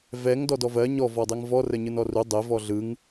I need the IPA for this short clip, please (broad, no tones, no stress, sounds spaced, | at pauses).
v ɛ ŋ d ɔ d ɔ v ɜ ɲ ɔ v ɔ dˤ e ŋ v ɔ r ə ɲ ɯ n ɔ r u dˤ e v ɔ ɮ ɯ ŋ